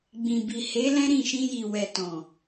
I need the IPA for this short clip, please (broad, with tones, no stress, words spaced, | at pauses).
ɡ͡bĩ˨bi˨he˨˦ lɛ̃˦ɾĩ˦˨ ʃĩ˧ji˨ wɛ˨tɔ̃˨